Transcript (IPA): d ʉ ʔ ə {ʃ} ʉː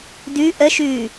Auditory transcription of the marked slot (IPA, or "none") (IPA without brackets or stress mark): ʃ